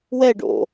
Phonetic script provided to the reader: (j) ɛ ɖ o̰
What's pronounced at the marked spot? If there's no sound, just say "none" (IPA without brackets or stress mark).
w